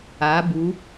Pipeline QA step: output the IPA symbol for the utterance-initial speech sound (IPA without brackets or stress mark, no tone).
a